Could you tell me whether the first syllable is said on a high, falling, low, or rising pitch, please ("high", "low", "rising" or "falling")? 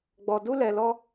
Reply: low